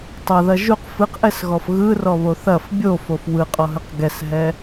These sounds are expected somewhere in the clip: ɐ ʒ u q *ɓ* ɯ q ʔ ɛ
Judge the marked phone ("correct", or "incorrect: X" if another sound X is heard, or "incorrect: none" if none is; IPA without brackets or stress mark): incorrect: f